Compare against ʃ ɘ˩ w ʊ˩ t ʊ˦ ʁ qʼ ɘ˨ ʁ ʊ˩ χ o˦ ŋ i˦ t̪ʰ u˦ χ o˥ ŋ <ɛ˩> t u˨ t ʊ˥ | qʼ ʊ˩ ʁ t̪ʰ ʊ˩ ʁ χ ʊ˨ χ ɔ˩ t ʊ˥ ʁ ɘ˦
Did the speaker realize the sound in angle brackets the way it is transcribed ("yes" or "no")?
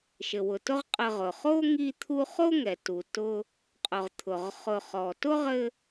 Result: yes